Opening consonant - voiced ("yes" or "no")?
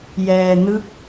yes